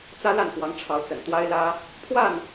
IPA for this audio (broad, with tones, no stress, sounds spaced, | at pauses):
t͡s ä˦ l a˥˨ n k w ɑ˨˦ ŋ ʈ͡ʂʰ ɑ˨˦ ʊ̯ t͡s ə̰˨˩ n t̪ w a˦ ɪ̯ l ä˦ | pʰ w a˥˨ n